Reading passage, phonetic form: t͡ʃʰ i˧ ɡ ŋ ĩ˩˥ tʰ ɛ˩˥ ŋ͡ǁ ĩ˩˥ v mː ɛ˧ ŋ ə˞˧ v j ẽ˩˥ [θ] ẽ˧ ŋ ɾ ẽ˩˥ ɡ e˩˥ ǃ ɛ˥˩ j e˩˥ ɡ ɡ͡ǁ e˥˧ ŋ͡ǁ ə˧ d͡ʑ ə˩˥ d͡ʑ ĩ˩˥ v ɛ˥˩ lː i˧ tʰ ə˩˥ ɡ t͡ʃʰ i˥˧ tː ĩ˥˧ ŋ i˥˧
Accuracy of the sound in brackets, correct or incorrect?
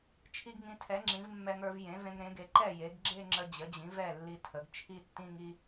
incorrect